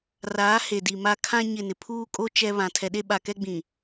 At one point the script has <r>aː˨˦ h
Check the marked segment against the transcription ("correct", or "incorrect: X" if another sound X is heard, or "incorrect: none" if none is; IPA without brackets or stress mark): correct